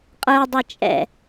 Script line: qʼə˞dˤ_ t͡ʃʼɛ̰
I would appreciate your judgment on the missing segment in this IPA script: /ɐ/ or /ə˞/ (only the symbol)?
ɐ